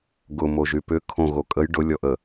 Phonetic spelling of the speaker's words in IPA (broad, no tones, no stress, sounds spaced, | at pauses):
ɡ ʊ m o ʒ y p ʏ kʰ õ ɣ o kʼ ə j ɖ ʊ lʲ ɔ ʔ ə